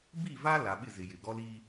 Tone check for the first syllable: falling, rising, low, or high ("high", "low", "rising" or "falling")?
falling